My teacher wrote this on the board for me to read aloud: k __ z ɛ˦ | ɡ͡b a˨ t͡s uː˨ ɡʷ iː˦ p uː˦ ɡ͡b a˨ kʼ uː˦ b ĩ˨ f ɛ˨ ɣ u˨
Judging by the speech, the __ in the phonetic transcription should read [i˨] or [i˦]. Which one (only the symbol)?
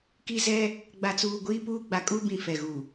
i˦